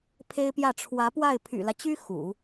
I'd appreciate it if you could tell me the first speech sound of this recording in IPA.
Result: pʰ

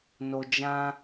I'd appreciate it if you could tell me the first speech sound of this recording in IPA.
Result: n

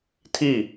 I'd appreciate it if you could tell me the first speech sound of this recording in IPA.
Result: tʰ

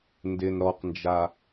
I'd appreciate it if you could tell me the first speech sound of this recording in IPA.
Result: n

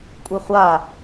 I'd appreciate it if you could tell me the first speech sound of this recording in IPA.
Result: kʷʼ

